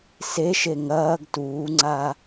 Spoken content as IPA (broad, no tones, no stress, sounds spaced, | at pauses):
s e ʃ e ŋ ɐː ɡ t uː ŋ͡ǀ a